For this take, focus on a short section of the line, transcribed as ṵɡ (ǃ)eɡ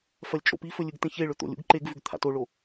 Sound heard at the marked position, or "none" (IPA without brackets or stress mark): ǃ